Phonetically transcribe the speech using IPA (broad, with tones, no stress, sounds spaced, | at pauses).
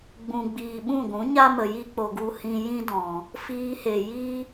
ɡ͡b ũ˨ ɡ͡b iː˨ ɓ ũ˦˨ ɡʷ ũ˨˦ ɲ a˦ m ə˨ j i˦ k͡p o˨ ɡ u˧ h ĩ˧ j ĩ˦ d ɔ̃˨ | f iː˧ h e˨ j i˦